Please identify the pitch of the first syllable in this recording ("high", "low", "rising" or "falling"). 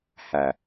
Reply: low